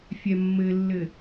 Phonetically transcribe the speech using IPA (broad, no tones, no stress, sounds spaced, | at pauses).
fʲ ɛ mː ɘ lː ɘ